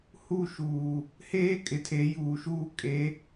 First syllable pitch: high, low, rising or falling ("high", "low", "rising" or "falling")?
falling